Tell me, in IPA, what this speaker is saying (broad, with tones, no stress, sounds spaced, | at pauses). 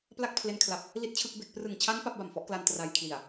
p l a˥˩ k̚ pʰ l e˧ n kʰ l a˨˩ p̚ | l i˥˩ t̚ t͡ɕʰ ɯ˥˩ k̚ b e˥˩ k̚ p r ɯ˨˩ ŋ t͡ɕʰ a˦˥ n p a˦˥ p̚ b a˨˩ m f ɔ˦˥ ʔ k l a˧ n t r a˧ j kʰ l i˨˩ a̯